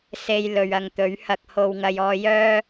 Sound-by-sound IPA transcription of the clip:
se˧j lɵ˨ɥɐ˨ŋt̪ɵ˨˥ɥ hɐ˧k̚ho˧wŋɐ˧j ɔː˧jœː˥

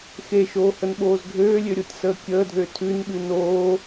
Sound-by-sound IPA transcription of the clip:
xeʃoːhənɓoːz ɡʱøːlʲøɾʲotʲsəː kʲəːdʱø tʰʉnɓʉ noː

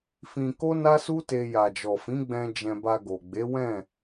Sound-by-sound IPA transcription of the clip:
fĩ˧ko˦ na˦su˦te˧ ja˨d͡ʒɔ˨fĩ˨˦ɡ͡bɛ̃˧ d͡ʒɛ̃˧ba˧ɡo˨ ɡ͡be˨˦wɛ̃˦˨

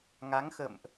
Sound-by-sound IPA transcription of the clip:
ŋa˨˦ŋxə̰˧˨mʔ

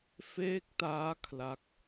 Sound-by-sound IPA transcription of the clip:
feː˦˥k̚taː˦˥ kʰla˦˥k̚

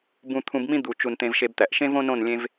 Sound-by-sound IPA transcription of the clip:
bũ˧t̪ʰũ˧bmĩ˦ d̪u˨t͡ʃu˨n t̪ẽ˧vʃe˧bt̪æ˨ʔ ʃẽ˦võ˦nõ˦˨n lʲẽ˧v

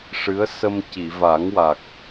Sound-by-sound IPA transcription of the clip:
ʂɨ˧˥ə̯ sə˧m ci˨˩˨va˨˩˦ŋwa˨˩k̚

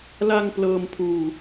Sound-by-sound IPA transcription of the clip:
la˧ŋ plɤː˧m pʰuː˧

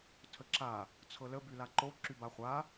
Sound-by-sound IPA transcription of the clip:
tʰəǁa | t͡sʰɤlə bylaǃo ǁybaχʷa

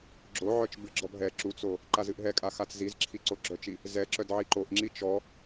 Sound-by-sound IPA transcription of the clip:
ɡ͡ǁo ʕœt͡ʃbɨɡ͡ǁɔb ɦɛ ǁut͡so | ǃazɨʔɦɛkʼa xat͡szizǁʰi ǀoɡ͡ǁœt͡ʃi | zɛǁœd ʕiǃoʔŋ͡ǁi t͡ʃɔ

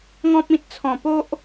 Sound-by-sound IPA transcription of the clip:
ŋɔ̃˦p̚ĩ˦t̚ t͡sʰɔ̃˨˩po˦ʔ

